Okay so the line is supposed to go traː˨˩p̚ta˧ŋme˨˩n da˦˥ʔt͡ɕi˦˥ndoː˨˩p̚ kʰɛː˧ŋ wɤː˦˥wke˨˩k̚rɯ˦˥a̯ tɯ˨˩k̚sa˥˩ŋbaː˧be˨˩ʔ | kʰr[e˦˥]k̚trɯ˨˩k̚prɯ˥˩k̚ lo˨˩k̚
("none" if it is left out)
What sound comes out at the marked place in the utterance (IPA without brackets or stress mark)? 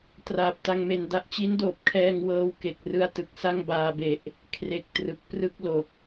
e˨˩